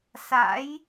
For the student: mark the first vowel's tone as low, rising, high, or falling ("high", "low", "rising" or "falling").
rising